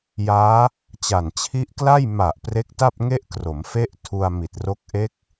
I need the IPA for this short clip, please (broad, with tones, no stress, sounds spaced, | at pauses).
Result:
j aː˦˥ | t͡ɕ a˨˩ n t͡ɕʰ i˦˥ ʔ k l a˥˩ j m a˨˩ ʔ p r e˦˥ k̚ t a˥˩ p̚ ŋ e˥˩ ʔ k r o˩˦ m f e˦˥ ʔ tʰ u˧ a̯ m i˨˩ t̚ r o˦˥ k̚ ʔ e˦˥ k̚